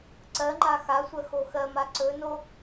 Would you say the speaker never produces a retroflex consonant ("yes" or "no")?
yes